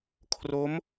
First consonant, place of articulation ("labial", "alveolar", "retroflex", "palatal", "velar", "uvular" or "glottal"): velar